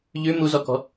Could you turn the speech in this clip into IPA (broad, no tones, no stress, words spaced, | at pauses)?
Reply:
ʎʉ muzɔkɔ̤